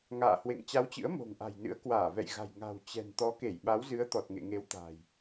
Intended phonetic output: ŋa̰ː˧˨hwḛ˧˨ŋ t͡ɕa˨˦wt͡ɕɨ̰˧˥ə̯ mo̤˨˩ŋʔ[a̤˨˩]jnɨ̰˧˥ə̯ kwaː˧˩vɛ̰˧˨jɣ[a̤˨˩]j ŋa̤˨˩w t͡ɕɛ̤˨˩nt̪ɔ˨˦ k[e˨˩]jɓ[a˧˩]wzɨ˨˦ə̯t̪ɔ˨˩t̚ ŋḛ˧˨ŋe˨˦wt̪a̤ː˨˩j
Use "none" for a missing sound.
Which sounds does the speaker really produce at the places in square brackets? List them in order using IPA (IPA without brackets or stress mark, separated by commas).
a̤˨˩, a̤˨˩, e˧˩, a˨˦